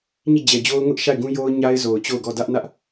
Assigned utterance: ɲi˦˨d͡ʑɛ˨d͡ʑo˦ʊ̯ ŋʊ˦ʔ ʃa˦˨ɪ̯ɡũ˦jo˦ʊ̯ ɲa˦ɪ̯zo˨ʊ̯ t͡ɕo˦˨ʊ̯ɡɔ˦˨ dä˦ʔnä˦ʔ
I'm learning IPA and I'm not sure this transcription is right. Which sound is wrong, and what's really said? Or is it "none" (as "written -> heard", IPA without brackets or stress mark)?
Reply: none